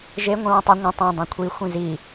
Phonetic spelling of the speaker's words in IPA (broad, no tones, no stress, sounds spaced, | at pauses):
ʒ e ŋʷ ĩ w ĩ tˤ ɐ ŋʷ ə̃ tˤ ẽ dˤ ĩ kʷʰ i xʷ ĩ z i